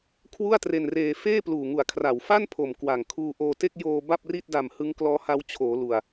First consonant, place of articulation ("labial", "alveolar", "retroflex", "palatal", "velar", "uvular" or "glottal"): velar